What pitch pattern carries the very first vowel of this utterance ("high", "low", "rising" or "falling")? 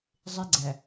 high